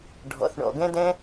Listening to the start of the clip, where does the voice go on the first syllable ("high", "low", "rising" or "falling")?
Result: low